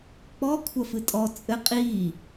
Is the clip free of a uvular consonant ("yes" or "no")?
no